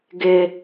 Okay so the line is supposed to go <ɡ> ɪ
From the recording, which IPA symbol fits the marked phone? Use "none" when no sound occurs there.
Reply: ɡ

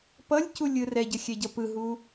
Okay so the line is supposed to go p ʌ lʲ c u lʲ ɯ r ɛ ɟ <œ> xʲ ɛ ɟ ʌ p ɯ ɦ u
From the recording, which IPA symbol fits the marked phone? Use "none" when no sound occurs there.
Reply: ə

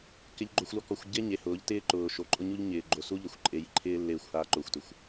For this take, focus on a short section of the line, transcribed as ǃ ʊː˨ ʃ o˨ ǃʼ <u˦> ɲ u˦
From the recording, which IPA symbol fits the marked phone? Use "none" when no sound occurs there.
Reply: ʊ˦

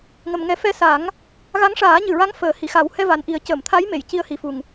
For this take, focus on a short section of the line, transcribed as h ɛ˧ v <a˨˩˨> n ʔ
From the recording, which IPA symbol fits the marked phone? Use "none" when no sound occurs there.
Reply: a˨˩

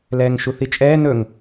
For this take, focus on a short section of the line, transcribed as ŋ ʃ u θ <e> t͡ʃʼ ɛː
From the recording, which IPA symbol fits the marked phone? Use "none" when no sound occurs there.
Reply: i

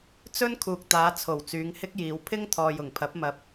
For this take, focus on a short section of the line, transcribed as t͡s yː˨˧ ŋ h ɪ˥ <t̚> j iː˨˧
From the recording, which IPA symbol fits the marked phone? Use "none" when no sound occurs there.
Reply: k̚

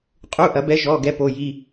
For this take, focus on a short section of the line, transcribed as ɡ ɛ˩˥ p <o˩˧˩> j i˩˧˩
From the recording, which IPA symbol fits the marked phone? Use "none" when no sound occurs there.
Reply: o˩˧˩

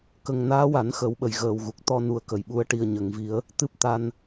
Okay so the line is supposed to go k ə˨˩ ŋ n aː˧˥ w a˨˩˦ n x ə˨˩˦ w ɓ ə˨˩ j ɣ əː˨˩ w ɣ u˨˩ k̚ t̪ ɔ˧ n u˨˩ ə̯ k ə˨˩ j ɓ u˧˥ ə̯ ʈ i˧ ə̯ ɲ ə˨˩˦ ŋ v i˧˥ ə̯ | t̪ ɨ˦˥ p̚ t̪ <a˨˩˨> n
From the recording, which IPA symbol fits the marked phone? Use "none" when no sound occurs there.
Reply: a˧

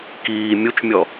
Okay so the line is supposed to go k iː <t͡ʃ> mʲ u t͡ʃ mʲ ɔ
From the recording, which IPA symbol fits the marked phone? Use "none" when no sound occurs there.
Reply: none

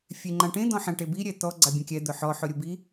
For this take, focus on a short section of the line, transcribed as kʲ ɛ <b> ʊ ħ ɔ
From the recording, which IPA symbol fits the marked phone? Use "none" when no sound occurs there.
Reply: d̪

